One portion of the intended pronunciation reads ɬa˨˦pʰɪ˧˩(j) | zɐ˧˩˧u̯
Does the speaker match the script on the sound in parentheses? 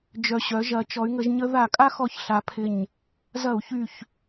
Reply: no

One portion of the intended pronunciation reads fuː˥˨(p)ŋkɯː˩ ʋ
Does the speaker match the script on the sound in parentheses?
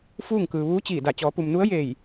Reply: no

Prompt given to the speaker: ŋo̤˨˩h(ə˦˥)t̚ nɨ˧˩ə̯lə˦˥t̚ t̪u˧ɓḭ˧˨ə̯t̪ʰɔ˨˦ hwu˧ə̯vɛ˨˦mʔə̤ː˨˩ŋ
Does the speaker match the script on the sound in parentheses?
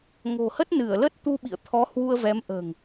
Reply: yes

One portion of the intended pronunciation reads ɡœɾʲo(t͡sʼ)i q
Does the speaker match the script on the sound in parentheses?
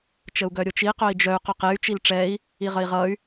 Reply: no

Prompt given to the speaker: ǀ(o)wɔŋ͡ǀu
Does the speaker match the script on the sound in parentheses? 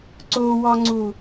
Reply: yes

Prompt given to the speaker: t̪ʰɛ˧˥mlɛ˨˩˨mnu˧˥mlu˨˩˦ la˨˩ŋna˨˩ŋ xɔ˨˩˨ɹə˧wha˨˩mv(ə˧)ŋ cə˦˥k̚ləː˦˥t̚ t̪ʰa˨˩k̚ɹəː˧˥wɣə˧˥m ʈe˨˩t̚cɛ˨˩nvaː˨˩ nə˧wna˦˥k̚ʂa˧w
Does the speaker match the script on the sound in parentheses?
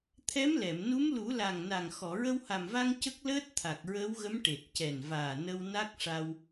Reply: no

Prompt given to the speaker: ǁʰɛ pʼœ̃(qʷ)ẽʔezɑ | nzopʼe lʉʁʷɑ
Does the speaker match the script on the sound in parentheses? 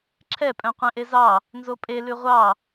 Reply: yes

